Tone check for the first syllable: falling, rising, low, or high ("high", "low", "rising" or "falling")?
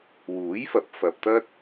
rising